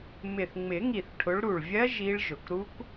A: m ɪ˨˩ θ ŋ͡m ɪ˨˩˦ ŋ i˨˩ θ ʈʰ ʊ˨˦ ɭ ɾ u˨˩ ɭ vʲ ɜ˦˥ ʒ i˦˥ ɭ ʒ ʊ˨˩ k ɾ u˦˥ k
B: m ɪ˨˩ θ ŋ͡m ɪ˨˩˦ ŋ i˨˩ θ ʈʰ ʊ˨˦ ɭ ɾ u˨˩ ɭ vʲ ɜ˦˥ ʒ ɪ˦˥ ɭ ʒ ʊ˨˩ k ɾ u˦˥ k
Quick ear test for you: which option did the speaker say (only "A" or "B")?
A